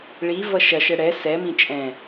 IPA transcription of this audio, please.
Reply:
ɭ i v ʌ ʃ ɐ ʃ ɛ ɽ ɛ s ɛ m ĩ t͡ʃʼ ɛ̃

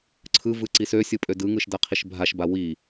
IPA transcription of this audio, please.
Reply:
ǀʰ ɯ v ɯ ǀ i s ø sʲ ɯ pʼ ø d ɯ ŋ ɯ ʃ d a qʰ i ʃ bʱ a ʃ b a w i

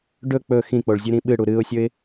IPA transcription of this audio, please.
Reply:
ɖ ɵ k͡p ɵ x ĩ k͡p o ɭ zʲ ʉ ɾ ĩ ɓ ɨ ɽ u ɾ ɨ ʊ̯ sʲ ɵ ɪ̯

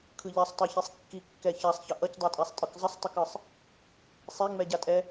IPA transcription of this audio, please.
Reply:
kʰ ɯ ʎ ɛ sˤ tˤ ɛ ç i sˤ kː i kː ɛ ç a sˤ ç ʌ ʔ ʌ c dˤ ɛ tʼ a sˤ tʼ ɯ k zˤ ʌ sˤ tˤ ɛ k ɯ sˤ | sˤ ɛ ŋ͡m ɛ ɟ a tʼ ɛ

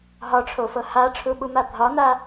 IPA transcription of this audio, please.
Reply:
ɦ ɒ ʈ͡ʂʰ o f ɤ h a ʈ͡ʂʰ u ɓ u m a bʱ ɒ n̪ a

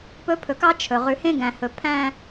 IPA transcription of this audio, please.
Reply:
p ɵ˦ pʰ ɵ˨ k ɑ˦ t͡ʃʰ ɵ˨ ʁ ʉ˨ h ẽ˦ ɡ æ̃˨ h ɵ˨ pʰ æ̃˦

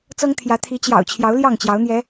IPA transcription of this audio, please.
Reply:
t͡s ɤ˦ ŋ t̪ʰ j ä˨˦ t̪ʰ i˨˦ t͡ɕ j ɑ̰˨˩ ʊ̯ t͡ɕʰ j ɑ˨˦ ʊ̯ l j ɑ˥˨ ŋ t͡ɕ j ɑ˨˦ ʊ̯ n̪ j ɛ˨˦

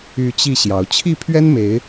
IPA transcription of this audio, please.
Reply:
y˨˦ t͡ɕ i˥˨ ɕ j ɑ˨˦ ʊ̯ t͡ɕʰ i˥˨ pʰ ɥ ɛ˦ n m e˨˦ ɪ̯

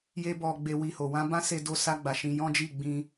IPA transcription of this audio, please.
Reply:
j e˦ b ɔ˧ ɡ͡b e˧ w i˧ h o˨ w ã˧ b ã˦ s e˧ d o˧ s a˧ ɡ͡b a˨ ʃ ĩ˧ j ɔ̃˦ d͡ʒ i˦˨ ɡ͡b ĩ˧

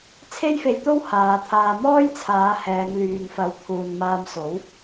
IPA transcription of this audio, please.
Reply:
t͡sʰ e˥ j f e˧ j t̪ o˥ w h aː˨˧ t̪ʰ aː˧ m ɔː˥ j t͡sʰ aː˨˧ h ɛː˨˧ ŋ l yː˨ ŋ f ɐ˨ w t̪ʰ uː˨ n m aː˧ m s o˨˥ w

